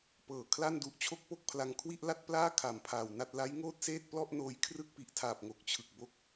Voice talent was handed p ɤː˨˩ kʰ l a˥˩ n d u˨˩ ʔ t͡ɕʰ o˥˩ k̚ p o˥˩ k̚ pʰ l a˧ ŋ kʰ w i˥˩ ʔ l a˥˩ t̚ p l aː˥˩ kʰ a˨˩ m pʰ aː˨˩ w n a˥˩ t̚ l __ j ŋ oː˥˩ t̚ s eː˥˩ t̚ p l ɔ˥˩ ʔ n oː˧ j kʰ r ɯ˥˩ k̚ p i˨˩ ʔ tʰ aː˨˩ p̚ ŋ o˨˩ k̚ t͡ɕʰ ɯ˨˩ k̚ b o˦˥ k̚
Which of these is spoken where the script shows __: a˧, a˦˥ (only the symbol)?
a˦˥